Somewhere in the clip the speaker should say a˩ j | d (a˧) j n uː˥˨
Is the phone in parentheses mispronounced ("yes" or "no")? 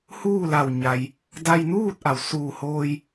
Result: no